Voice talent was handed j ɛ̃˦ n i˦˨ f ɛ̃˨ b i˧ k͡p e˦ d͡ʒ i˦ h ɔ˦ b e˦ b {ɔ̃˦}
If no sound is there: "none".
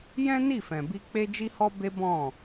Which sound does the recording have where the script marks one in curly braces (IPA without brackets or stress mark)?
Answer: ɔ̃˦˨